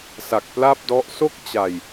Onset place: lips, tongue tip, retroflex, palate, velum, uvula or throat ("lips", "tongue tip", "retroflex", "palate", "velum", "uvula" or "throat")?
tongue tip